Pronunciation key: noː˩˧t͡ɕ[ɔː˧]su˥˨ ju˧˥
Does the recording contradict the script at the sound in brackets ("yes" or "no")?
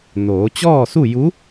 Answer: yes